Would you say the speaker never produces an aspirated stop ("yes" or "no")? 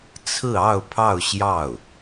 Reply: no